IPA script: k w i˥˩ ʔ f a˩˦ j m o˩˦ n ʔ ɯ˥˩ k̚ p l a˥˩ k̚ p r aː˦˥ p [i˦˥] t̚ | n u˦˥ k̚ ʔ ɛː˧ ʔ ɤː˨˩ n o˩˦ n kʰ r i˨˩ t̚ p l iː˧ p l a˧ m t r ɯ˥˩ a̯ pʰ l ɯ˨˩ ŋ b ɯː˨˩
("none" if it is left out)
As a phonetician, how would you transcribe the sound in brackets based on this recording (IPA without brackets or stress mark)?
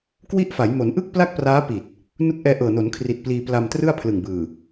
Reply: i˨˩